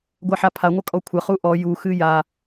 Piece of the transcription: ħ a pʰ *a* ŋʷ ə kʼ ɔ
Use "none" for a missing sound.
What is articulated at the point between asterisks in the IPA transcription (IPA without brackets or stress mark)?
a